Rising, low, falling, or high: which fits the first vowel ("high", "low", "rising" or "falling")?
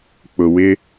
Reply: low